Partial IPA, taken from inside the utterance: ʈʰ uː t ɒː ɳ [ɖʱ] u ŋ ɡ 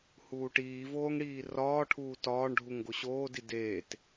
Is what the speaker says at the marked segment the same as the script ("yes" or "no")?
yes